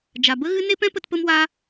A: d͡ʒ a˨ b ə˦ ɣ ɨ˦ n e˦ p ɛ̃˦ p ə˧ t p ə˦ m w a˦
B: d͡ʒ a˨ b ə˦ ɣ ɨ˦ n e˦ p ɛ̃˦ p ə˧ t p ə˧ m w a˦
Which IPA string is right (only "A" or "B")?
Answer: A